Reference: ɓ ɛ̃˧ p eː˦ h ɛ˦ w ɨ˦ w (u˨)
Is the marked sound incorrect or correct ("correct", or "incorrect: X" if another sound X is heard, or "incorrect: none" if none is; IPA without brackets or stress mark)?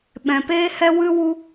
incorrect: u˦